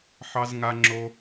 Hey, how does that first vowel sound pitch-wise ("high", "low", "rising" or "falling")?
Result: high